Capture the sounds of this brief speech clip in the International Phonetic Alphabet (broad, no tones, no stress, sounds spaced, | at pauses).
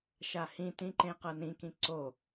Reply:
ʃ a h ĩ t ĩ ǃ ẽ q ɤ n ĩ k ĩ ǀ o